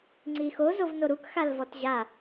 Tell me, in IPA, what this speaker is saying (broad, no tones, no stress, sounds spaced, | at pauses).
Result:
ŋ͡ǀ i x o z o v n o ɾ u k x a l v ɔ t ʑ a